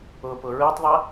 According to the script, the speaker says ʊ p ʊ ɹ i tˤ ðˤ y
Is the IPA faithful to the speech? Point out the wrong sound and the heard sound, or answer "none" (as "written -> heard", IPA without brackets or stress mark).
y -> ɪ